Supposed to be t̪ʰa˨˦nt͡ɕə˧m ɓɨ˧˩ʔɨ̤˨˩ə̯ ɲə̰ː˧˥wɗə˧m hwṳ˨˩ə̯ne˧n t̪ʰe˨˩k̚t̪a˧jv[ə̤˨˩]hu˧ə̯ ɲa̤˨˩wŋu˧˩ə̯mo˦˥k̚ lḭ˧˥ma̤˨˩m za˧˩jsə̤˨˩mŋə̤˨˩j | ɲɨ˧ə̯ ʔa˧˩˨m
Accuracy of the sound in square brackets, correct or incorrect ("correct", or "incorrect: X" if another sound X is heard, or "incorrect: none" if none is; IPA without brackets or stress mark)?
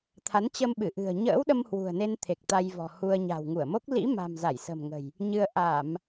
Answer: incorrect: ɔ̤˨˩